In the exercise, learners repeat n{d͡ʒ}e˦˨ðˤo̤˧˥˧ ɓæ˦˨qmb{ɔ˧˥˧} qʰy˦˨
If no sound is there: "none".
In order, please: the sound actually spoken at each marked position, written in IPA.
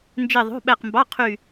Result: d͡ʒ, ɑ˧˥˧

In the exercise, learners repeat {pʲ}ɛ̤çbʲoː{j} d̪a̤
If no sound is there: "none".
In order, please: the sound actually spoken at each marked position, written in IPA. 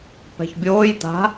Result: p, j

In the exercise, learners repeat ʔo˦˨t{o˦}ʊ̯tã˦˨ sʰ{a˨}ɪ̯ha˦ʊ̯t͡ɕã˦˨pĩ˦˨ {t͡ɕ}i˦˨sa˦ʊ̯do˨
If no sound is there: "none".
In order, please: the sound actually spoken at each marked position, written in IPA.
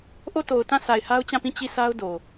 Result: o˨, a˨, t͡ɕ

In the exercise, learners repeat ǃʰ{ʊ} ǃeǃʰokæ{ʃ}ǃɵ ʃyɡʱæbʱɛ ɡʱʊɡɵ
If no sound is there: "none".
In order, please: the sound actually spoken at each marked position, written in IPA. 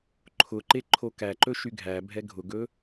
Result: ʊ, none

